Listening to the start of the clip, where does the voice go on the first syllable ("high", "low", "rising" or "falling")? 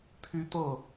high